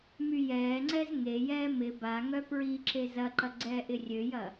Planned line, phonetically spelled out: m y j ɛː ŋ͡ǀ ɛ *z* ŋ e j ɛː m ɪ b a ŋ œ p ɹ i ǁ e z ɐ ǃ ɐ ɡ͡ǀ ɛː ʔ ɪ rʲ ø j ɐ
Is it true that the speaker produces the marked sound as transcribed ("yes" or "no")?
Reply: yes